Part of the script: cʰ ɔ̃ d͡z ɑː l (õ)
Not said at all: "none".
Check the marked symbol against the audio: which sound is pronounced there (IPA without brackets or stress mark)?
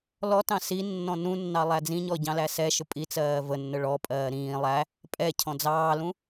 ũ